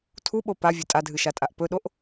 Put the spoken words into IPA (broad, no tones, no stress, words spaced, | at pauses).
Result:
tʰuɓo pavʲɵ tʼadʱɨʃatʼaʔ pɵɗoʔ